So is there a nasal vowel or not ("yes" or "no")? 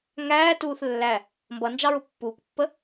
no